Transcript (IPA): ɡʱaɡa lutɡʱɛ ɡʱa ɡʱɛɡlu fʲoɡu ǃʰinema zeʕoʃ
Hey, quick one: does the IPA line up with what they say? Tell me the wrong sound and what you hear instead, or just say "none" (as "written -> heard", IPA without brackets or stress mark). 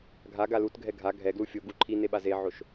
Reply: m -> ɓ